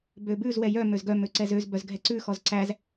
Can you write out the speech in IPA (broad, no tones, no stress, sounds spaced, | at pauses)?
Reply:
b ø b ʉ z w ɛ j œ m ø z ɡ œ m ø ǀ ɛ z ø z b œ z ɡʱ ɛ ǀ ʉ x ɔ z ǀ æ z